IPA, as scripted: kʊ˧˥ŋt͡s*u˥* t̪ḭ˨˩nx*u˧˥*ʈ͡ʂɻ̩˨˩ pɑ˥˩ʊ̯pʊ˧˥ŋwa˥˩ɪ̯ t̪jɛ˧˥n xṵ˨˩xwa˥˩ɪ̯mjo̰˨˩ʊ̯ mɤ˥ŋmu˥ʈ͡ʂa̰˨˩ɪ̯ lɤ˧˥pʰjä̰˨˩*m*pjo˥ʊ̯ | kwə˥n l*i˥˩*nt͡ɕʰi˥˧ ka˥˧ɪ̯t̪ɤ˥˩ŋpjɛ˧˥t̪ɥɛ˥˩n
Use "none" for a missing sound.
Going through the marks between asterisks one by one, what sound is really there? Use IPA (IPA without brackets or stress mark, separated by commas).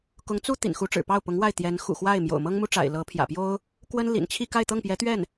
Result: u˥, u˧˥, none, ḭ˨˩